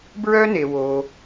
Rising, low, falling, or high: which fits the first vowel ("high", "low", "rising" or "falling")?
high